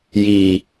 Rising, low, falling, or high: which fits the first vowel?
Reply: low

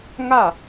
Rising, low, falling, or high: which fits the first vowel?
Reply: falling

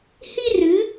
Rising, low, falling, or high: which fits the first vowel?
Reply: high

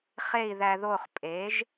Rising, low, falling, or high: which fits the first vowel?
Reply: falling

